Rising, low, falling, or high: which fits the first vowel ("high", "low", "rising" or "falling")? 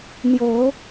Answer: low